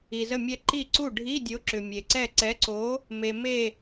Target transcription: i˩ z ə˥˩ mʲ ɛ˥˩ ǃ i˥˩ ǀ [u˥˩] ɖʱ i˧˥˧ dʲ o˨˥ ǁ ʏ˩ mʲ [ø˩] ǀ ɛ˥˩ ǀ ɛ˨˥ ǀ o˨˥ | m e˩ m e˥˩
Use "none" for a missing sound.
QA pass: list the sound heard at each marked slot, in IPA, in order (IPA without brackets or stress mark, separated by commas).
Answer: u˥˩, e˩